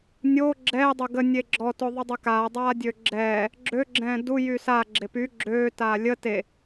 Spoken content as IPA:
nʲ o ɡ͡ǁ ɛː dˤ o ɡ ə nʲ e ɡ͡ǁ ɔ t o ðˤ u dˤ œ k aː dˤ aː dʲ øː ɡ͡ǁ ɛː | ɡ͡ǁ ø ɡ͡ǁ ɛ̃ː d u j y s a ɡ͡ǁ e p y ɡ͡ǁ øː t aː lʲ ə t e

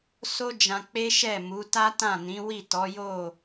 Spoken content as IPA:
s o˦ d͡ʒ ã˧ k͡p e˦ ʃ ɛ˦˨ m u˨˦ t a˦ t ã˦˨ n ĩ˨˦ w i˦˨ t ɔ˨˦ j o˦˨

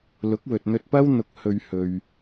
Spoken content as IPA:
l ʊ˨˥ k̚ w ɵ˨ t̚ n̪ ɵ˧ t̚ p ɐ˥ w n̪ ʊ˧ k̚ h ɵ˧ ɥ h ɵ˨ ɥ

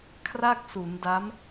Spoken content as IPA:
kʰ r a˥˩ k̚ s u˩˦ n d a˦˥ m

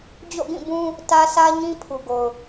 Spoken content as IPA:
d͡ʑ o̰˦˨ ɡ ĩ˦˨ b ũ˦ | t ä˦ s ä˦ ɲ ĩ˦ pʰ u˨ ɡ o˨ ʊ̯

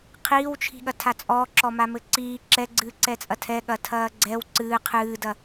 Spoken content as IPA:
qʰ iː w t͡ʃʰ i̤ ɠ ɐ tʰ a t͡sʼ ɔː ǁ ɔ m a m ɘ ǀ iː ǁ ɛ ɡ͡ǀ ɨː ǀ ɛ t͡sʼ ɐ tʰ ɛ ɠ ɐ tʰ ɐː ɡ͡ǀ ɛ w ǀ ɨː qʰ ɨː d ɐ

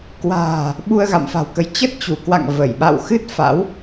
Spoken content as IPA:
k w a̤ː˨˩ | ɓ u˧ ə̯ ɣ a̰˧˨ m f a̤˨˩ w k ə˨˦ j t͡ɕ ə˦˥ t̚ t͡ɕ u˧˩ k w a̰˧˨ ŋ v ə˧˩ j ɓ a̰˧˨ w x ɨ˦˥ t̚ f a̰˧˥ w

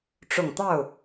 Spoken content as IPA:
ʈ͡ʂ ʊ˨˩ ŋ t̪ ɑ˥˩ ʊ̯

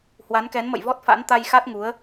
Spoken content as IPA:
h w a˨˦ n k ɛ˨˦ n m ə̰˧˨ j v ɔ˦˥ t̚ f a̰˧˥ n t̪ a˧ j x a˦˥ t̚ ŋ u˨˦ ə̯

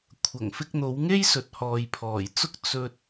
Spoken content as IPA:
kʷʰ ɐ˨˩ ŋ f ɪ˧ k̚ n̪ o˨˧ w ŋ e˥ j s ɵ˨ t̚ h ɔː˨ j pʰ ɔː˨˩ j t͡s ʊ˥ k̚ t͡s ɵ˧ t̚

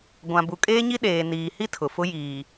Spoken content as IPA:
ɡʷ ã˨ b u˨ kʼ eː˦ ɲ i˦ ɗ eː˨ n iː˨ h i˦ tʰ ʊ˨ f ʊ˦ j iː˨

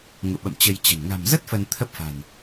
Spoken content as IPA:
ŋ ṵ˧˨ ɓ ə̰˧˨ m t͡ɕ ə˧ j t͡ɕ ə̤˨˩ n ŋ a̤˨˩ m z ə˦˥ t̚ f ə˧ n t̪ʰ ə˦˥ p̚ f a̤˨˩ n

